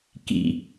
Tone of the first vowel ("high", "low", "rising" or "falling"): low